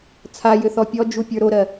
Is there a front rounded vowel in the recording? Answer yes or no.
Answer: yes